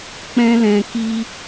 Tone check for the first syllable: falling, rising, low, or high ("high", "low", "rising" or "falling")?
high